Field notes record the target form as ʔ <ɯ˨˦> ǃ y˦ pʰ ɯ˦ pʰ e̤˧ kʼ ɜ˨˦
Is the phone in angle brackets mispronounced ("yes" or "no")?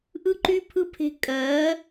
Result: yes